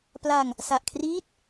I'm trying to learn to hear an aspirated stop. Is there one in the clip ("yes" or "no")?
yes